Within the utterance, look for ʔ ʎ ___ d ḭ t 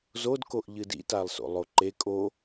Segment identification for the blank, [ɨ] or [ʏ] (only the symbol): ɨ